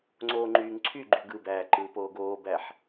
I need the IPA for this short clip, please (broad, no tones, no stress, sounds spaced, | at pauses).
ŋ͡ǀ oː ŋ͡ǃ yː ŋ ǀʰ y ɡ͡ǃ y ɡ ɯ b æː ǃ ɯː p oː ɡ oː b æ ħ